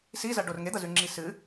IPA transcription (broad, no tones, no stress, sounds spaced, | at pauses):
s i z ɐ ɖ o r ŋ e d̪ ɐ z ʉ ŋ͡ǁ i s ɨ